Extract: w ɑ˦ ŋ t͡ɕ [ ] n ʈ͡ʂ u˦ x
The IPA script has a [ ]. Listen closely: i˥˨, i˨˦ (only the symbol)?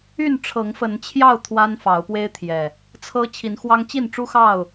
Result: i˥˨